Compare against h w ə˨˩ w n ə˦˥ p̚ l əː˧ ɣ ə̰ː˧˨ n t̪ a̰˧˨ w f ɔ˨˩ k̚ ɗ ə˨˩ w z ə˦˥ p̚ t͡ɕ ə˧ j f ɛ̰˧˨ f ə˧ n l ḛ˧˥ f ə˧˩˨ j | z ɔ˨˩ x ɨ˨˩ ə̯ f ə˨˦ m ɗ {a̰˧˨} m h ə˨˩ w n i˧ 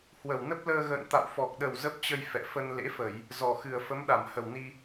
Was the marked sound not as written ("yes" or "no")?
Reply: yes